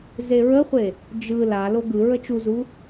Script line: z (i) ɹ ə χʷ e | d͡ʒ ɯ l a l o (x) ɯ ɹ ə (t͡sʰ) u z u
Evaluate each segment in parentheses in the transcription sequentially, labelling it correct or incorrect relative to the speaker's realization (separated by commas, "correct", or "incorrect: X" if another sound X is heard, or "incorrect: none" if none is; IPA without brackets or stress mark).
incorrect: e, incorrect: ɡ, incorrect: t͡ʃ